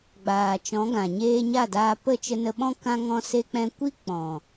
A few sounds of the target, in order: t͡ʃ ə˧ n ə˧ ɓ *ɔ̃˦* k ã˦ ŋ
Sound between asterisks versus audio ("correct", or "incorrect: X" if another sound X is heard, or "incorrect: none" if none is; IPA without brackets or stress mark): correct